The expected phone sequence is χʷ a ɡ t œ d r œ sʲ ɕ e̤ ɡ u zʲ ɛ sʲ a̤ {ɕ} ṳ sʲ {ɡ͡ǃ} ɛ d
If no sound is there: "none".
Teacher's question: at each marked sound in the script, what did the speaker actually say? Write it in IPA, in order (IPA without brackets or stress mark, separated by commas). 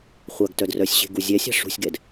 ʂ, ɡ